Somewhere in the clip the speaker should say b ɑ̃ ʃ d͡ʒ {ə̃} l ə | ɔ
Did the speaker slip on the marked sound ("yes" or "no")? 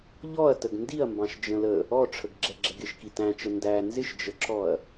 no